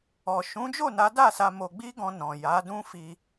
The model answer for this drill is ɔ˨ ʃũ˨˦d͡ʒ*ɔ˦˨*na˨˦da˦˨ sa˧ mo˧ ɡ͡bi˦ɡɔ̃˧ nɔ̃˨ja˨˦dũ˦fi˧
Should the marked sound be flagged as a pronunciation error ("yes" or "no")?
yes